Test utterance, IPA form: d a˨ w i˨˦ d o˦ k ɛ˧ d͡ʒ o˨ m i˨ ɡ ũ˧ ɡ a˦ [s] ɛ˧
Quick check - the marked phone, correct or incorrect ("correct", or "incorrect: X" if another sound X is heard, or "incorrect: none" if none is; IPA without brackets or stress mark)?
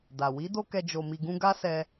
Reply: correct